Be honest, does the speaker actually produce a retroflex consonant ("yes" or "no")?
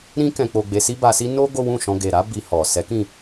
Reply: no